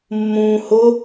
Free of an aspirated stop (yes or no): yes